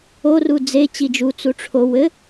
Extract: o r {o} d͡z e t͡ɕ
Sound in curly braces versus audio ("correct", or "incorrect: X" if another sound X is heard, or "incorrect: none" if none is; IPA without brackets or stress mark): incorrect: u